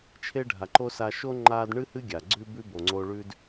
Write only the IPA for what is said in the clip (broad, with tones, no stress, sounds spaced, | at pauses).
t͡ʃʰ e˦ ɖʱ a˨ ǃ o˦ s a˧ ʃ o˦ ŋ͡ǃ aː˧ d ɳ ɨ˦ h ɨ˦ ɡʲ a˨ ɡ͡ǀ ʉ˦ b ʉ˦ b o˨ ŋ͡ǀ o˧ ɭ ʉ˦ d